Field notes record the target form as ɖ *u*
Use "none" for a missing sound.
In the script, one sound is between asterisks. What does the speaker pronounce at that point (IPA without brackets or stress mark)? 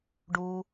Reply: u